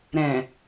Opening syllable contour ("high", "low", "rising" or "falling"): low